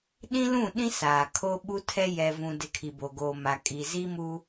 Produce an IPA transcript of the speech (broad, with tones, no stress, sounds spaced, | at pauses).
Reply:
ɗ ĩ˦ l ũ˦˨ ɗ ĩ˦ s aː˨ kʰ o˦ ɓ u˦ tʰ ɛ˦ j ɛ˨ v ũ˨ d ɪ˨ kʰ i˨ b o˨ ɡ oː˨ m a˨ kʼ i˨ z i˦ m u˦